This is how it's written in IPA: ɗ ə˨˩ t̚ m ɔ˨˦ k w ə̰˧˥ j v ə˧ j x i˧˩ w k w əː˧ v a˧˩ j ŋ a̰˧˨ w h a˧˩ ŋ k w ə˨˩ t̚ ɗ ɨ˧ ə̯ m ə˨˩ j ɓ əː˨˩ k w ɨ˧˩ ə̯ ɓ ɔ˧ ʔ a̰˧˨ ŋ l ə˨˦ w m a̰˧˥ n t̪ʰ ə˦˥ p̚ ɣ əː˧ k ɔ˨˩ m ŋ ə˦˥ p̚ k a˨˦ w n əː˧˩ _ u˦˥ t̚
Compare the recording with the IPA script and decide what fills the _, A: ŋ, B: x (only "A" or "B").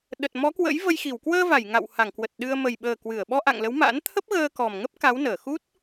B